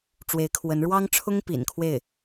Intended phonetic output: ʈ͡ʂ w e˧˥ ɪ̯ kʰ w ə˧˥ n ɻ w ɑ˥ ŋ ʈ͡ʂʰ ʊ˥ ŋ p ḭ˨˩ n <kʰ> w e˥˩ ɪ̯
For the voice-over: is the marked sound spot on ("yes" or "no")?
yes